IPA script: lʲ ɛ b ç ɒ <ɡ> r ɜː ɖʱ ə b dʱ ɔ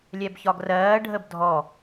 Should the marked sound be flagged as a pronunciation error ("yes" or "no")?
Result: no